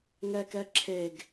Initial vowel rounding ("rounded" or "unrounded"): unrounded